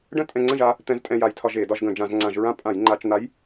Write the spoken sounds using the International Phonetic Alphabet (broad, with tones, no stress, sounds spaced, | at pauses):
ɖ ə̃˥˨ tʼ ɛ̃˧ ŋ͡ǀ ə̃˥˨ ʒ a˧˥ | t̪ ɛ̃˧˥ z tʼ ɛ̃˧ j a˧˩˧ j tʰ ɒ˧ ʒ e˧˩˧ d ɒ˧ ʒ ɡ ə̃˧˩˧ d͡ʒ ã˧˩˧ z ŋ͡ǀ ã˧˩˧ ʒ ɹ ã˥˨ pʼ ã˧˩˧ j ŋ͡ǃ a˧˩˧ t͡ʃ n̪ a˧˥ j